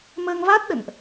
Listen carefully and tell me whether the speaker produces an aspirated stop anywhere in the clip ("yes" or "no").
no